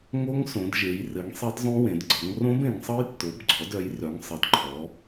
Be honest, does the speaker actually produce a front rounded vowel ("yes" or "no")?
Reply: yes